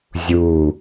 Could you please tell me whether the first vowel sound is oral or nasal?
oral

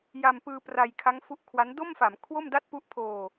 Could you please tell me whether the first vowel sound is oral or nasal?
oral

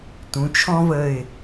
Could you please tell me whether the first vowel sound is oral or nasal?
nasal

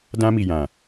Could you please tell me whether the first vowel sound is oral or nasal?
nasal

